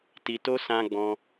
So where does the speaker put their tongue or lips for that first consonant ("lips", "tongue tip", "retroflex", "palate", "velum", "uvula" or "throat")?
tongue tip